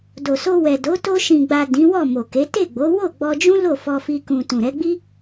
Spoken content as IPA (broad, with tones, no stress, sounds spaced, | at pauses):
d o˨ s o˧ w ɛ˨ d o˨˦ t o˧ ʃ ĩ˨ ɡ͡b a˨ d ĩ˨˦ w ɔ˦˨ m o˨ k e˨˦ t e˦˨ ɡ͡b o˨˦ w o˦˨ ɡ͡b ɔ˧ d͡ʒ ũ˦ l o˦˨ f ɔ˧ f i˧ k ũ˨ t ũ˨ ɾ ɛ˨˦ ɡ͡b i˦